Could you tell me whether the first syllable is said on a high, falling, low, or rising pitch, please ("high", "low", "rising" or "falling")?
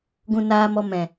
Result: low